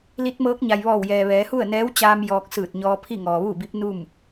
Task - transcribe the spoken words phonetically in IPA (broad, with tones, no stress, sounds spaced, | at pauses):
l i˧˥ t̚ m ɤː˧˥ k̚ ɲ a˩ j ʋ ɔː˧˩ w j ɛː˩ ʋ ɛː˩˧ h u˥˨ ə̯ n ɛː˧˥ w t͡ɕ aː˧ m j ɔː˧ k̚ s ɯː˧˩ t̚ ɲ ɔː˧ pʰ i˥˨ ŋ ɔː˩ ʋ uː˥˨ b i˧˥ p̚ n u˥˨ m